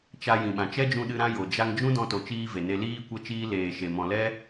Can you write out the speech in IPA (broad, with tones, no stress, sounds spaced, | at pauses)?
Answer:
t͡ʃ a˧ j ĩ˨ ɓ ã˨ t͡ʃ ɛ˦ d͡ʒ ũ˧ ɗ ɨ˧ ɾ ã˦ j o˨ d͡ʒ a˧ ŋ d͡ʒ ũ˦ d ɔ̃˧ t o˨ t͡ʃ iː˧ v e˨ n e˧ l iː˦ kʷ ɛ˦ t͡ʃ iː˦ l eː˨ ʃ e˨ m ɔ̃˨ l ɛ˦